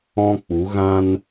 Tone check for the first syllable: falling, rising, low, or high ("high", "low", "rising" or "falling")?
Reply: high